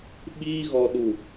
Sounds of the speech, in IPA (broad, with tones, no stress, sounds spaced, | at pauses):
ɓ iː˦ ɣ ɔ˧ ɗ u˨